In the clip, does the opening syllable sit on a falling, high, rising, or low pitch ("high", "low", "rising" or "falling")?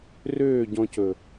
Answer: falling